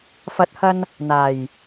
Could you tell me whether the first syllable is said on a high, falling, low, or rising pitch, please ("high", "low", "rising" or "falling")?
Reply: rising